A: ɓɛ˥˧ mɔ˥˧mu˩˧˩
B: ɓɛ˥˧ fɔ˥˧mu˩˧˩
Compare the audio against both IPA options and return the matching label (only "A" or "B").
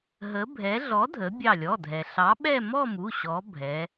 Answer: A